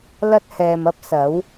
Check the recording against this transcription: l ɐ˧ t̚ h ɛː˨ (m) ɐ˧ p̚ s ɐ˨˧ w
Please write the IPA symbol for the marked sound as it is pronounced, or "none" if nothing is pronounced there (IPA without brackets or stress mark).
m